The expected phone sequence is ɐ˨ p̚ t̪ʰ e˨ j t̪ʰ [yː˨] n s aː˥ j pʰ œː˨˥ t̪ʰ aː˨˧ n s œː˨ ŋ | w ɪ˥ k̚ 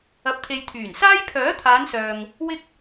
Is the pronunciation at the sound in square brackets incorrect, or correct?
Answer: incorrect